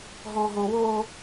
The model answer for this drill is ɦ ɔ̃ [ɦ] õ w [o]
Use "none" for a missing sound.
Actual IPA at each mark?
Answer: ɦ, o

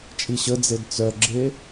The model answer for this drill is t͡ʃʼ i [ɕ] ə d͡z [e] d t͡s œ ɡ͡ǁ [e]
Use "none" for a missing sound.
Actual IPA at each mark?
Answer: ɕ, e, e

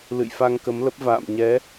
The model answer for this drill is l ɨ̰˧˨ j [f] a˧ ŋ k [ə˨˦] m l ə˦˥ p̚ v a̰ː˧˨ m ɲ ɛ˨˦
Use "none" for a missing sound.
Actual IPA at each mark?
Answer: f, ə˨˦

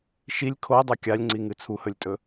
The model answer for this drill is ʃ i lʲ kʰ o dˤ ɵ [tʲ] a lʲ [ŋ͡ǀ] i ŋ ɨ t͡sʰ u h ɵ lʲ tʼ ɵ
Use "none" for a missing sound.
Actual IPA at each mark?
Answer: kʲ, ŋ͡ǀ

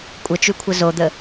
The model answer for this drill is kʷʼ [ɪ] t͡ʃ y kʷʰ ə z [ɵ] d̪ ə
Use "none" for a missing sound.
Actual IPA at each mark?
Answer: ə, o

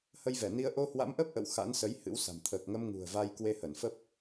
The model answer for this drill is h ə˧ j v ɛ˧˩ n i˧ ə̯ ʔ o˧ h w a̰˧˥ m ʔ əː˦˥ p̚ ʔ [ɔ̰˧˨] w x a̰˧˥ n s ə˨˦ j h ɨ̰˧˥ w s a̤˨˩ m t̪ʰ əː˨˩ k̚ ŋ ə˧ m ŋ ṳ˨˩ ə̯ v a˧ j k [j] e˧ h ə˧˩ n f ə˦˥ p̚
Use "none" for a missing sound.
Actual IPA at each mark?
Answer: ə̰˧˨, w

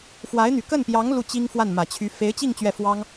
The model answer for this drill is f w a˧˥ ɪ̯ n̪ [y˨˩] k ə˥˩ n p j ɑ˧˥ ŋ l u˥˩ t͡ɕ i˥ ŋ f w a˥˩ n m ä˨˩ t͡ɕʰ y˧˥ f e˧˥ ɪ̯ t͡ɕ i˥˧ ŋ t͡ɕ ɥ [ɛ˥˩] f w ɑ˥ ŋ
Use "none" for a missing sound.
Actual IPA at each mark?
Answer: y˨˩, ɛ˥˩

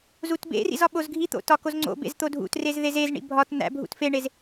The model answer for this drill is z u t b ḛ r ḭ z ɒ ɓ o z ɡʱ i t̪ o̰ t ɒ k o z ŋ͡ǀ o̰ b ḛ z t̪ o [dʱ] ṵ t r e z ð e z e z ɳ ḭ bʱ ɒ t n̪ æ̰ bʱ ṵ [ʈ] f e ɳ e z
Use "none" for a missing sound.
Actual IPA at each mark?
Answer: dʱ, t

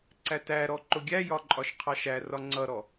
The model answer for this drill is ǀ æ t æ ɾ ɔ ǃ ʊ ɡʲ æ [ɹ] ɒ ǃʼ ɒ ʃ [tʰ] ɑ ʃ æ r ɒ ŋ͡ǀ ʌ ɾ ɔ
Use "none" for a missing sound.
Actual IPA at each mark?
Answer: j, qʰ

